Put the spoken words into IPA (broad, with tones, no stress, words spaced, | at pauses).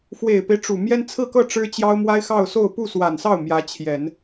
fwe˨˩ɪ̯pe˦ɪ̯ ʈ͡ʂu˨˩ mjɛ˥nt͡sʰɹ̩˥˧kɤ˥˩ ʈ͡ʂɻ̩˥t͡ɕjɑ˥ʊ̯mwa˥ɪ̯ xɑ˥˧ʊ̯so˥˧ʊ̯ pu˥˩swa˨˩nsɑ˥˩ʊ̯ mjä˧˥t͡ɕʰjɛ˨˩˦n